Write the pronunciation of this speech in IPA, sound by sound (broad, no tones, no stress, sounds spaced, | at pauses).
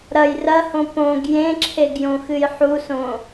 ɾ ɐ j r ɐ h õ p õ ɡ j ẽ ǁʰ e ɡ j õ x ɨ j ħ u s õ